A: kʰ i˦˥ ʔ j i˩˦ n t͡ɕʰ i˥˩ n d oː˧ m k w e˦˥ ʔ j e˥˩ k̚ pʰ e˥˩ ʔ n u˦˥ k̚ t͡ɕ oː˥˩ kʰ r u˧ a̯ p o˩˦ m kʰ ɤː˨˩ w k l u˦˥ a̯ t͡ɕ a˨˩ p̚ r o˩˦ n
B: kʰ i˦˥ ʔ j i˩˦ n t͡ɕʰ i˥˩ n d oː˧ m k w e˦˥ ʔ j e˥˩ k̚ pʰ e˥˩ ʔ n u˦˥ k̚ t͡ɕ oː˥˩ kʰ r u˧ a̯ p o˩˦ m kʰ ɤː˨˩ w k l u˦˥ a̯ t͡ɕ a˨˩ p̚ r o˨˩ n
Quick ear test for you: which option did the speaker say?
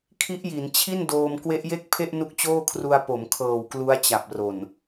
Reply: B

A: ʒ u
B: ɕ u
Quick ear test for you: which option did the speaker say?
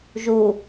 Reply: A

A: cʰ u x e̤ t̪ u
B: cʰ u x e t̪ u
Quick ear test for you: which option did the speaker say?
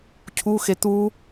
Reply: B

